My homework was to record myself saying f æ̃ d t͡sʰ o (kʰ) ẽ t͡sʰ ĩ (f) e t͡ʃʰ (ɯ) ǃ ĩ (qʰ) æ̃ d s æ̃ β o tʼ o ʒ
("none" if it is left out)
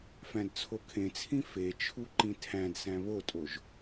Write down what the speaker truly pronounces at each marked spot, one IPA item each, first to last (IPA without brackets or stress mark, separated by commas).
kʰ, f, u, tʰ